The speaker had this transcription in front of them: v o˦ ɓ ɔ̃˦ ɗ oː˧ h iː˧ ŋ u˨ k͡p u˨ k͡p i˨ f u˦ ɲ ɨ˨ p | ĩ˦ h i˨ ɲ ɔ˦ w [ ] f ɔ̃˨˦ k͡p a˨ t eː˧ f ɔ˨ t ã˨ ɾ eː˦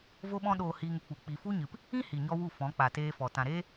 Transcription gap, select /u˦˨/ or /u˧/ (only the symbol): u˦˨